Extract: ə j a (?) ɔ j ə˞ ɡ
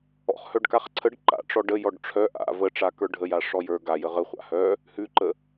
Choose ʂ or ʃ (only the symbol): ʂ